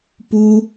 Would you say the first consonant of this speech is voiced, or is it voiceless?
voiceless